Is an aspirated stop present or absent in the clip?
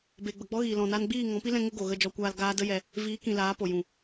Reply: absent